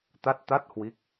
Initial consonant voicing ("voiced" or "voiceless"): voiceless